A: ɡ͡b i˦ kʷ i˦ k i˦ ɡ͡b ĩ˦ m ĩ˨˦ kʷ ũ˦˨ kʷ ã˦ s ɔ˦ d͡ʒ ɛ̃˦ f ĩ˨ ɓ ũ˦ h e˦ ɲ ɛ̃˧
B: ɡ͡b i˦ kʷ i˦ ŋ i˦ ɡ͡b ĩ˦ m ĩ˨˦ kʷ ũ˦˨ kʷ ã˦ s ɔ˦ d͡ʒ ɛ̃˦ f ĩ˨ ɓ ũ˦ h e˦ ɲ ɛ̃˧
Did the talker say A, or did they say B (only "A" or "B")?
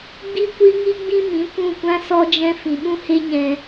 B